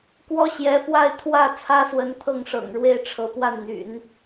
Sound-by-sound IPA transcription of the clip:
k w ɔ˥ ɕ j ɛ˧˥ f w a˥˧ ɪ̯ t̪ʰ w ä˥˩ t͡sʰ ä˥ s w ə˧˥ n t̪ʰ ɤ˥˩ ŋ ʂ ɤ̰˨˩ ŋ ɻ w e˥˩ ɪ̯ ʈ͡ʂʰ ɤ˧˥ p w a˥˩ n n̪ y̰˨˩˦ n

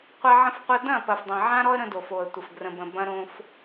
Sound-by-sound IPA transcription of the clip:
qʷ a˦ ʕ ə̃˦ f qʷ ɐ˦ d ɐ̃˦˨ p ɐ˨ f dˤ ɐ̃˨ ʕ ã˦ ɾ ɔ˦ ə̯ ɾ ə̃˦ d o˨ f o˨ ə̯ tʷ ə˨ f ɡ r ə̃˨ b ə̃˨ b ɐ̃˦ ɾ õ˦ f

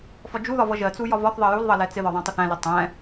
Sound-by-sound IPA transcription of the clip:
f ɒ d͡ʒ u ð ɒ v ʌ ʒ ɜ t͡s u j ɒ v ɒ θ ðˤ ɜ j u l ðˤ ʌ l ɛ t͡s ɪ ð ɒ ðˤ æ̃ tˤ ɪ θ æ̃ l ɪ tˤ ɛ̃

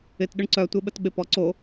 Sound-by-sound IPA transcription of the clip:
ɪ t ɗ ʏ ɳ ǀ œ tʷ e ɓ ə t ɓ ɪ p ɔ ǀ o

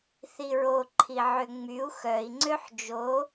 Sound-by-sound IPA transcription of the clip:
θ i ɹ o ǃʰ i ʕ ø ŋ͡m y u̯ x œ i̯ ŋ͡ǀ ø ħ d͡ʒ o

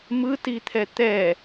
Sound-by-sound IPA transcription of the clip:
m ɯ t i t̪ʰ ɛ t̪ ɛ

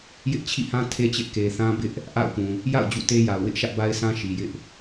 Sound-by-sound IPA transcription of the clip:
j ɪ˦ ʔ t͡ɕʰ ḭ˦˨ h ã˦ tʰ e˦ t͡ɕ ɪ˦ ʔ k e˨ θ ã˦ b ɪ˦ ʔ | ʔ a̰˦˨ ʊ̯ p ũ˨ | j a̰˦˨ ʊ̯ d͡ʑ ṵ˦˨ t e˦ j a˨ ʊ̯ w ɪ˦ ʔ ʃ ä˦ ʔ b a˦ ɪ̯ s ã˦ ʃ i˨ j ɪ˦ ʔ

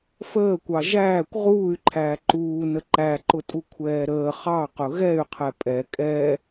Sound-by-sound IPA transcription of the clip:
f əː kʷ ɑ ʒ æː kʷ ʁ uː y̯ ǃʰ æː ǃ uː n ə ǃ æ ǃ ʊ tʼ u kʷʰ ɛː ɾ əː χ ɑ q ʊ ɣ ɛ y̯ qʰ ɛ pʼ ɛ kʼ ɛ

